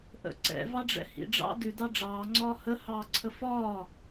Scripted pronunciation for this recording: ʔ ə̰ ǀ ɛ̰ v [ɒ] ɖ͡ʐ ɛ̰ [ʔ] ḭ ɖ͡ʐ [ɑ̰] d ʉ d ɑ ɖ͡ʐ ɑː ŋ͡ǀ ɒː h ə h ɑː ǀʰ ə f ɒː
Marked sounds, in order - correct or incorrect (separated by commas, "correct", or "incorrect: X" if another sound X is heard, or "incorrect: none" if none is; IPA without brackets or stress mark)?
incorrect: ɑ, incorrect: h, correct